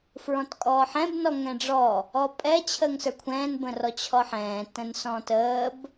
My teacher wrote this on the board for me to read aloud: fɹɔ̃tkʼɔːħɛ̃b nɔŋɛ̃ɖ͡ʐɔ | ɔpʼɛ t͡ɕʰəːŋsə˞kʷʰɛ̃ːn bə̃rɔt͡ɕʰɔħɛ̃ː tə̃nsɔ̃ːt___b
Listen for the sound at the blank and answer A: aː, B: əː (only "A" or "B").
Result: B